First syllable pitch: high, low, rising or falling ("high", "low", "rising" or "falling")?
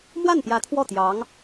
falling